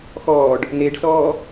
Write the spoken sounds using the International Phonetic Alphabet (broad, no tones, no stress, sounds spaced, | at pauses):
x ɔː ɖ | n e ɖ s ɔː